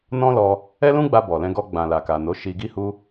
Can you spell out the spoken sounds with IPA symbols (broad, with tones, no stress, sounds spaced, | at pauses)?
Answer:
n ɔ̃˦ l ɔ˧ | ɛ˦ l ũ˦ ɡ͡b a˧ b ɔ˨ l ɛ̃˧ ɡ ɔ˧ ɡ͡b ã˨ l a˨ k a˨ n o˨˦ ʃ i˧ ɡ i˦ h u˧